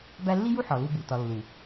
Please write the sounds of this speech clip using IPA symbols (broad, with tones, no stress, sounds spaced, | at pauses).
b æ˦ lː i˦ j u˦ ħ ɒ˨ l u˦ b u˨ t ɒ˨ lː u˨